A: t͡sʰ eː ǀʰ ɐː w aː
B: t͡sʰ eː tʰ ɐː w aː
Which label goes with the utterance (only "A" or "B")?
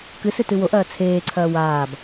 A